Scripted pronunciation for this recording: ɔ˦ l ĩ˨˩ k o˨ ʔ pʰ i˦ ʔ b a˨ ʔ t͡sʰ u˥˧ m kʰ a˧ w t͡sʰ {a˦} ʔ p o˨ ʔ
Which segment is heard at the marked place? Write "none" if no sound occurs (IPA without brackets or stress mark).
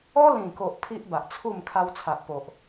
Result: a˨